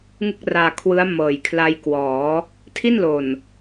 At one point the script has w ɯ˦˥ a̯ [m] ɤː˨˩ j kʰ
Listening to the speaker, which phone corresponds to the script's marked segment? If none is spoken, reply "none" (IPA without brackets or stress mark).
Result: m